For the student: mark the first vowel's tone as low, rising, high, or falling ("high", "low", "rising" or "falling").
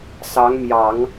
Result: rising